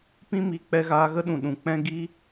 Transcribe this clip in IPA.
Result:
p ĩ˦ m i˧ k͡p ɛ˧ ɣ aː˧ ɣ ə˦ ɗ ũ˨ ɗ ũ˨ k͡p ɛ̃˦ ɡ i˦

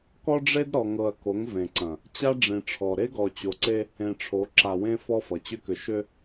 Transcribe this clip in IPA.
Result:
k ɔ˦ ɖ͡ʐ e˦ d ɾ ɔ˨ ŋ ɤ˨ ɐ̯ k o˨˦ ŋ v ẽ˨ ǀ ɐ̃˨ | t͡ɕ a˦ ɖ͡ʐ ĩ˨ ʈ͡ʂʰ ɔ˨ ɾ e˦ ɡ ɔ˨ t͡ɕ o˨ ǀ e˦ | ẽ˨ ʈ͡ʂʰ o˨˦ ǁ a˨ w ẽ˦ f ɔ˦ f ʌ˨ t͡ɕ ʏ˦ k ʏ˨ ʃ ʏ˦

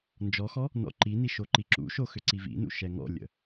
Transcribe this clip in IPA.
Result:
n d͡ʒ ɔ x ɔ | n ɔ̰ ǃ i n i ʃ o ǃ i ǁ ṵ ʃ o x ʏ ǀ i v ḭ n ṵ ʃ ɛ ŋ ɔ̰ lʲ ə̰

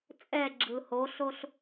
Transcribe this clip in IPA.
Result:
t͡sʼ ɛ ɡ͡ǁ ɯ h o ɬ o ɬ

